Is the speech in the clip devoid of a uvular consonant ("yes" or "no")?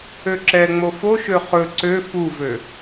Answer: no